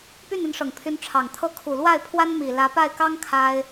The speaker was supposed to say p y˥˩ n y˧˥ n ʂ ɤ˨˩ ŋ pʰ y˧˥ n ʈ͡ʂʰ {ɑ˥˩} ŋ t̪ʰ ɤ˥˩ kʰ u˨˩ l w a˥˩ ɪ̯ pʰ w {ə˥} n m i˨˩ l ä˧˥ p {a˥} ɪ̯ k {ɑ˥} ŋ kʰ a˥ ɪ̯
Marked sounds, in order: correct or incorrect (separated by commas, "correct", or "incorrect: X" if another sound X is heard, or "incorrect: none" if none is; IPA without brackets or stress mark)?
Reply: incorrect: ɑ˨˩, incorrect: a˥, incorrect: a˥˩, correct